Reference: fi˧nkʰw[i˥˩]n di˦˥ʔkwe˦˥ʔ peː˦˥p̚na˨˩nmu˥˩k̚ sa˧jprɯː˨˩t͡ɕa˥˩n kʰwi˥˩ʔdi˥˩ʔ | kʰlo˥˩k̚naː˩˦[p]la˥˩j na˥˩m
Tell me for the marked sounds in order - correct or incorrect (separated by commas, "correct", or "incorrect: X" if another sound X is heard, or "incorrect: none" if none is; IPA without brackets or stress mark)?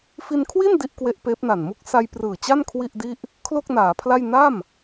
correct, incorrect: pʰ